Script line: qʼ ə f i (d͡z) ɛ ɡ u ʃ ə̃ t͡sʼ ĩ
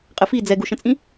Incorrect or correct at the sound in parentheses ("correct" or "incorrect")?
correct